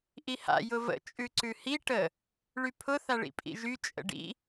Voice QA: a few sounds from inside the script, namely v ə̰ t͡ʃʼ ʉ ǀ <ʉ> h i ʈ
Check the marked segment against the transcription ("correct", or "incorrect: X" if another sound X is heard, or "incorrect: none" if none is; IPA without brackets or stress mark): correct